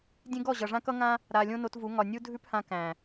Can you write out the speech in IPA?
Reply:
dʲ ẽ˦ ɡ ɔ˦˨ ʑ ʌ˨ ʐ ã˦ k ʌ˦ ŋ ã˦ | ɾ a˨ lʲ õ˦ n o˧ t v u˨˦ ŋ ɒ˨ nʲ u˦ dʱ ʉ˦ p h ã˧ k æ̃˨

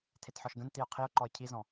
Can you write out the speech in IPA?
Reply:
tʰ e t ħ ɔ ʃ ɡ ə̃ n t i ʊ̯ qʰ i ʊ̯ ǃ ɔ ɪ̯ cʰ i z ɔ̃

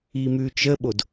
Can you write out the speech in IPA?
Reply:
i m ʉ t͡ʃ ə ɓ o d

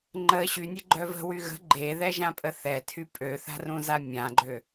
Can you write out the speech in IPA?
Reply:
ŋ͡ǃ ə ɕ y nʲ e ɡ͡ǃ œ v ə̤ w y ɣ ə̤ ɡ͡ǃ e ð ɛ ʒ ã pʼ ə θ ɛ tʰ y pʼ ø θ a̤ r ũ z a mʲ ã ɡ͡ǃ ø

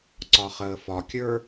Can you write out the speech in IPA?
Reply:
ǀ ɒ χ əː f ɒ kʲ ə˞

